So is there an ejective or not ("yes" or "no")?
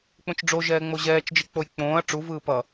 no